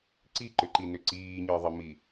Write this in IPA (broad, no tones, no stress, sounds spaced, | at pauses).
ǀ i ǃ ʏ ǃ i n ʏ ǀ iː ɲ ə˞ ðˤ ə m i